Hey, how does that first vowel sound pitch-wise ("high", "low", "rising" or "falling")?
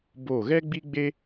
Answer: falling